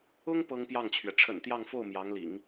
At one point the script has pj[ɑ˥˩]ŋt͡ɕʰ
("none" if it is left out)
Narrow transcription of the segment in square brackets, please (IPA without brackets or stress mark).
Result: ɑ˥˩